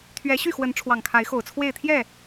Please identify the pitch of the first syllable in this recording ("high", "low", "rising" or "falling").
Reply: rising